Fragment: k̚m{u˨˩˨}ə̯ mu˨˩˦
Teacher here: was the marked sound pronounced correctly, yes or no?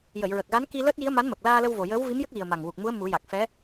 no